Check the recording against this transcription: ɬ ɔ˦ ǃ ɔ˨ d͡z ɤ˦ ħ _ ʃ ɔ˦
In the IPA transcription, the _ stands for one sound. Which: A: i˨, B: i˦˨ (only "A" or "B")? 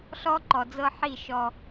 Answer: B